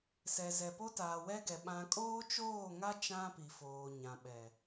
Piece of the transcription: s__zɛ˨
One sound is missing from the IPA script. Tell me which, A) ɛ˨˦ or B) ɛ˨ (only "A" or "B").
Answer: B